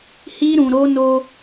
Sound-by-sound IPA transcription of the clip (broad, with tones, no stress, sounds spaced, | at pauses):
h i˦ ɾ ũ˧ ɾ o˦ n o˧